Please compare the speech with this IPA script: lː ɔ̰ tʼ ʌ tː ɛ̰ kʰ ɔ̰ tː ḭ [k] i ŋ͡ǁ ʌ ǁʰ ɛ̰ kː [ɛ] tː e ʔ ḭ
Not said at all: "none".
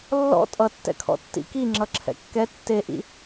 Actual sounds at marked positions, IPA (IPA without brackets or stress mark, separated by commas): k, ɛ